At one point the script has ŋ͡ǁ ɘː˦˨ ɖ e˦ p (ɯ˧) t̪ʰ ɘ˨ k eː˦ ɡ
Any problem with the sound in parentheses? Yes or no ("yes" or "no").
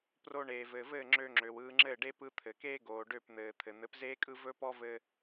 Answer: no